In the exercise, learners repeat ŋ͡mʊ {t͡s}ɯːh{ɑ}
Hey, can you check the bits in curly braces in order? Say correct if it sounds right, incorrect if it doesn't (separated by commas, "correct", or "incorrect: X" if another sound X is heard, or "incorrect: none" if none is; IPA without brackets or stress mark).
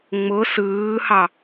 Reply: incorrect: s, correct